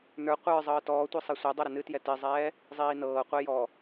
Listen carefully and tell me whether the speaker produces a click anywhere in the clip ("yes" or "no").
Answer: no